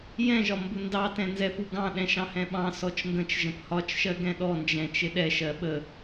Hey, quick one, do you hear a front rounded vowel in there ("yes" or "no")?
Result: no